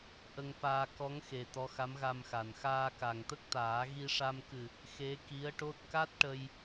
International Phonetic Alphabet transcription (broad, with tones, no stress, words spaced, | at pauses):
ʔə˧ŋfaː˧ kɔ˧˥ŋxe˨˩ t̪ɔ˧˥xa˧˥mɣa˧mxa˨˩n xaː˧ka˨˩ŋt̪ə˦˥k̚t̪aː˨˩˦ ɣi˧ʂa˧m kɨ˨˩ | xe˧˥ki˧˥ə̯ʈo˦˥t̚ ka˦˥t̚ ʈə˧j